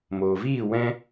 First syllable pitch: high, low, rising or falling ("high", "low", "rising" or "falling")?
low